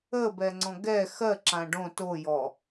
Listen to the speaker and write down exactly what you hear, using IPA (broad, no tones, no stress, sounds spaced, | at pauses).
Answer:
ə b ɛ ŋ͡ǀ ɔ̃ ɡ ɛ x ɜ ǁ ã ɖ õ t o j ɔ